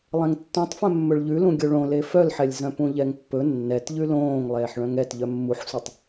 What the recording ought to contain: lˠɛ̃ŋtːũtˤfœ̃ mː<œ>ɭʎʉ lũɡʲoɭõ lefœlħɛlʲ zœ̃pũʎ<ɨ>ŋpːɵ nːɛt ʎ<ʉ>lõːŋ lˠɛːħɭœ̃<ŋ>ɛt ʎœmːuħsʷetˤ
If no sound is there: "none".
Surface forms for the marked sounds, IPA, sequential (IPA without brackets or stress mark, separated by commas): ɵ, ɛ, ʉ, ŋ